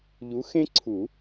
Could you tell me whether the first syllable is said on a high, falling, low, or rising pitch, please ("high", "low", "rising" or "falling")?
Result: rising